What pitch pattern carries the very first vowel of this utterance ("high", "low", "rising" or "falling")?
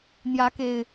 rising